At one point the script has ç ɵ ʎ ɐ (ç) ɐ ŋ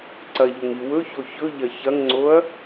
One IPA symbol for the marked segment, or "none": ç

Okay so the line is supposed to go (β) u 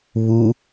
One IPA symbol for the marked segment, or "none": β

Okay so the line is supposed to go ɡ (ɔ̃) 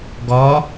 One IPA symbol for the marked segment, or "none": ɔ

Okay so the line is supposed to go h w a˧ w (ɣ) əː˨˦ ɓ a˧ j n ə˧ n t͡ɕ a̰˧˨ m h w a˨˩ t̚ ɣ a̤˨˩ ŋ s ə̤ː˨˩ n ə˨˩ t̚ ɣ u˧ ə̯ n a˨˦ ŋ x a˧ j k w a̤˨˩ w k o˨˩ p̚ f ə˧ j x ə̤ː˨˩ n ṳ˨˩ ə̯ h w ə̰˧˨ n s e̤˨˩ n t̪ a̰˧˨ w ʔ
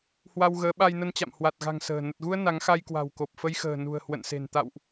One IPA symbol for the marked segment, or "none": ɣ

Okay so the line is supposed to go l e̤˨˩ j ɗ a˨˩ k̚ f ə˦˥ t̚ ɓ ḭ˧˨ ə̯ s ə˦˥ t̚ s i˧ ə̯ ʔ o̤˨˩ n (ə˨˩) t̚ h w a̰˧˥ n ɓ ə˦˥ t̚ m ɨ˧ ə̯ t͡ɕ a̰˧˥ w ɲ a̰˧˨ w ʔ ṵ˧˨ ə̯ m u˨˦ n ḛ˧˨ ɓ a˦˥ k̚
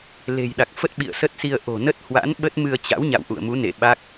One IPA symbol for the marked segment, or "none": ə˦˥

